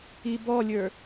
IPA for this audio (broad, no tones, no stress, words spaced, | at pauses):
ibɔlʲə˞